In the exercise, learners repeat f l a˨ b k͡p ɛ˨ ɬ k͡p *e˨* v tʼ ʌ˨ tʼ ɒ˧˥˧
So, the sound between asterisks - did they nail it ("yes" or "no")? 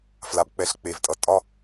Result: yes